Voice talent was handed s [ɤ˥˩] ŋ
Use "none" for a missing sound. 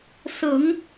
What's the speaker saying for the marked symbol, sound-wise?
ɤ˨˩˦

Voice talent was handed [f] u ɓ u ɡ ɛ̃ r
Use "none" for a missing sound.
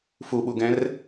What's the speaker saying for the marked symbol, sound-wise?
f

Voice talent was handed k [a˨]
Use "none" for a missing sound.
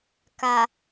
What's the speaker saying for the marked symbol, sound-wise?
a˨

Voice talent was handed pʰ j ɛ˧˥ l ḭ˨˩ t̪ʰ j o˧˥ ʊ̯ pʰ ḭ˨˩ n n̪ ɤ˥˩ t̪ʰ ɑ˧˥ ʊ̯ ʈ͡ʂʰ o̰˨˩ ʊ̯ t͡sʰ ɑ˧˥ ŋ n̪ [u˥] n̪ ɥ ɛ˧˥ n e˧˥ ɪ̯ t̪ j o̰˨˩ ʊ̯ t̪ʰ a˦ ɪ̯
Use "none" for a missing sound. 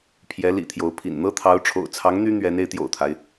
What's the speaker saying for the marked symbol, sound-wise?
y˥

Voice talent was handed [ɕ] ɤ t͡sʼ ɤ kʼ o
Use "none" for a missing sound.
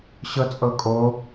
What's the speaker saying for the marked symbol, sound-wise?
ɕ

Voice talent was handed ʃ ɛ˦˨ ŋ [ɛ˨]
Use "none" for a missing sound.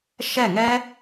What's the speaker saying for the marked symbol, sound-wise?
ɛ˦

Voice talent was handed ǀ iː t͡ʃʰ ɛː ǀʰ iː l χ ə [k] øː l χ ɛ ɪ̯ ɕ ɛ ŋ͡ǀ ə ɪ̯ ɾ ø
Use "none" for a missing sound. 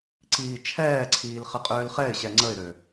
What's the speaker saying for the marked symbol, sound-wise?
qʼ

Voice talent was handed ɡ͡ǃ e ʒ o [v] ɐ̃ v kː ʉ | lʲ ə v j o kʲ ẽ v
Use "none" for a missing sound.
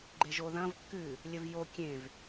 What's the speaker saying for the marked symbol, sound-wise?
ð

